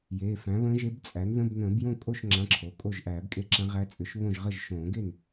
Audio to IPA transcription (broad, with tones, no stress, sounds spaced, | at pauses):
j eː˩˧˩ f æ̃˩˥ β ə̃ː˧˥ ʒ e˧˥ b t͡sʼ æ˩˥ n ð ə̃˧˥˧ b n ə̃ː˨˩˦ b j õ˥˩ kʼ o˥˩ ʃ ŋ͡ǁ ã˧˥˧ ǁʰ o˩˧˩ kʼ o˥˩ ʒ ʔ æː˨˩˦ b kʼ e˥˩ ǁ ã˧˥ ʁ æ˧˥ t͡sʼ ʏ˨˩˦ ʃ β õ˥˩ ʒ ʁ ə˥˩ ʒ ʃ õː˨˩˦ ɡ e˥˩ n